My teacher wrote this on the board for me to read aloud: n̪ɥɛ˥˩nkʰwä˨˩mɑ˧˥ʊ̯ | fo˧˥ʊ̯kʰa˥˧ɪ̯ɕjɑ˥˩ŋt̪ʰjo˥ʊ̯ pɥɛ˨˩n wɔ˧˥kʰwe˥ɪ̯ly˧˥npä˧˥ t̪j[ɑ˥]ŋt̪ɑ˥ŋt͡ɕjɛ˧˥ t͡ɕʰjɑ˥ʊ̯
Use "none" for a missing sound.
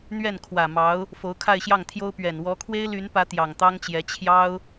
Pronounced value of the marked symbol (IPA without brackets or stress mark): ɑ˨˩